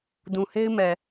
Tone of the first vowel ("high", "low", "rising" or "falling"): low